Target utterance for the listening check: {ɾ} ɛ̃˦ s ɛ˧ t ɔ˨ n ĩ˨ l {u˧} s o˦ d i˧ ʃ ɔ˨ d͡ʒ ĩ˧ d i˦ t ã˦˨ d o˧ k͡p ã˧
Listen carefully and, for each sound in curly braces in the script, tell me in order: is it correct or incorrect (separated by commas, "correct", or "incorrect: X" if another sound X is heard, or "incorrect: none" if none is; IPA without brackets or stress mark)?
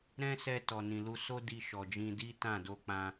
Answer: correct, correct